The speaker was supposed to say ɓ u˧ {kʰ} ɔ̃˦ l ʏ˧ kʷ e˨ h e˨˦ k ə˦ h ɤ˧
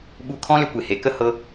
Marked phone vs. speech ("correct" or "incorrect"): correct